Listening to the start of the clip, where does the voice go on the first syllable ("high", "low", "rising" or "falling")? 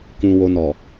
low